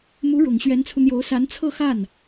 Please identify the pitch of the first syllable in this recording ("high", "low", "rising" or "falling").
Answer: rising